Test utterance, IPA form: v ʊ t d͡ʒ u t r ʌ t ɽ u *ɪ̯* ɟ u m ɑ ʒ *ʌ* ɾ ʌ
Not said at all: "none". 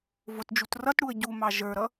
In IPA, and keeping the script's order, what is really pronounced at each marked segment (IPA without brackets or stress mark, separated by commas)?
ə̯, ə˞